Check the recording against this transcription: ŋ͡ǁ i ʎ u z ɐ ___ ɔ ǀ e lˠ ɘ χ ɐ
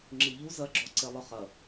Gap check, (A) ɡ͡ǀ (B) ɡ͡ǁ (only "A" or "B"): B